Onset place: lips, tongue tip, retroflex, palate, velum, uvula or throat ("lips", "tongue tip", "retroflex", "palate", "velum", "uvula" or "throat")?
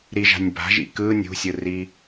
tongue tip